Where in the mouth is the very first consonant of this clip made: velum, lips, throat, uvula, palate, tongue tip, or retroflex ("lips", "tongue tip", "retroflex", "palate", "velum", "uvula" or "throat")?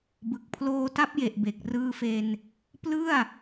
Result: lips